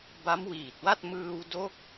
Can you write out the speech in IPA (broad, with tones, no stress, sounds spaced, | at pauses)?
b a˦˥ m w iː˨˩ t̚ w a˥˩ t̚ m ɯː˧ w d o˥˩ k̚